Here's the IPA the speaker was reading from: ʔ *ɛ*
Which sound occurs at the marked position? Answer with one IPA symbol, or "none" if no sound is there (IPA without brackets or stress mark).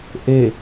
e